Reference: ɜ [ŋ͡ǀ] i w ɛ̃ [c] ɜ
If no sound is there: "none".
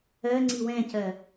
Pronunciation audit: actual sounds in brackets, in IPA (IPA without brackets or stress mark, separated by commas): ŋ͡ǀ, c